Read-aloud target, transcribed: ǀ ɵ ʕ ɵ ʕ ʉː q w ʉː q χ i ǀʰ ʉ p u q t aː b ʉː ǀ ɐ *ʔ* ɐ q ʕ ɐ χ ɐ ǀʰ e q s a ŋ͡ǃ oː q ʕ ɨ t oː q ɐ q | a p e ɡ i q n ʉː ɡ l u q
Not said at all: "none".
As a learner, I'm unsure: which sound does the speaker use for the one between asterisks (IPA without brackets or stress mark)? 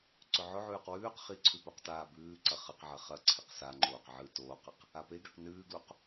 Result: χ